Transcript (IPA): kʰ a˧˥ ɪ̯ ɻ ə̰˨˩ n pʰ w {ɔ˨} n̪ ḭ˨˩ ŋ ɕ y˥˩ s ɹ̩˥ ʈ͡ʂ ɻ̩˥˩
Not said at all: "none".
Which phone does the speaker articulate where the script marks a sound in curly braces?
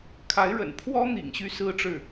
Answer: ɔ˥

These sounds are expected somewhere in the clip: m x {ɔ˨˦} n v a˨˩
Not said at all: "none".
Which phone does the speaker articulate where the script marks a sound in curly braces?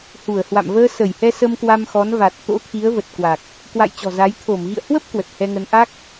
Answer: ɔ˨˦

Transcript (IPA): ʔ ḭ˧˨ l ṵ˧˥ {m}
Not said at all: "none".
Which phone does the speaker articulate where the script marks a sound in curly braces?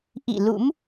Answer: m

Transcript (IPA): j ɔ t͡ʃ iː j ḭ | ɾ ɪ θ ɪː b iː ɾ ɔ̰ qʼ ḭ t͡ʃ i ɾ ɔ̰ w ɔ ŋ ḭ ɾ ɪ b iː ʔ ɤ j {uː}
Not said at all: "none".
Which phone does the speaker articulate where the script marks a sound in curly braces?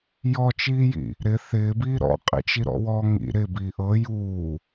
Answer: uː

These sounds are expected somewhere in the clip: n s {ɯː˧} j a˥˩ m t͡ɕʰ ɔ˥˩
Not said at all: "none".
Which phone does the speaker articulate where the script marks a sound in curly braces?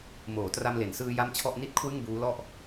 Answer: ɯː˧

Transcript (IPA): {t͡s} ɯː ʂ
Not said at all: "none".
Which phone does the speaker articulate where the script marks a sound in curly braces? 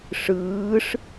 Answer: ʂ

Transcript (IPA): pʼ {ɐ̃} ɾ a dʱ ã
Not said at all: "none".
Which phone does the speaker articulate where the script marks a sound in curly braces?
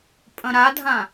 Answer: ɐ̃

